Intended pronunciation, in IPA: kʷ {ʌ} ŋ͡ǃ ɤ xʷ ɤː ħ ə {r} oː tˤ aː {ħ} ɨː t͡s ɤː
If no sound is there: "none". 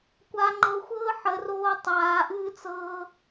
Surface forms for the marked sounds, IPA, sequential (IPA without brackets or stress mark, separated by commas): a, r, ʔ